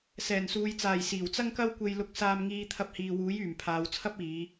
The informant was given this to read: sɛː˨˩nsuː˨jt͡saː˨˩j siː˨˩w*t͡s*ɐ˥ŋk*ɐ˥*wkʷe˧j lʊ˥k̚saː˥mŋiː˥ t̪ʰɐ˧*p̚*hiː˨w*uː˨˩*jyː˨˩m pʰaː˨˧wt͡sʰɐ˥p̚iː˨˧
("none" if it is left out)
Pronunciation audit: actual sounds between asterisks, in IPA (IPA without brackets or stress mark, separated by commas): t͡s, ɐ˥, p̚, uː˨˥